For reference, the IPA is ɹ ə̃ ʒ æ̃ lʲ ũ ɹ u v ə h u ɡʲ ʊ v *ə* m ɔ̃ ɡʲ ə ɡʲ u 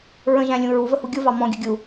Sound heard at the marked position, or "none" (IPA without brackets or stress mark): ɑ